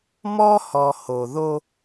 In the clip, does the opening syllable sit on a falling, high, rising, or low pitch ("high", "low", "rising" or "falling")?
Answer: high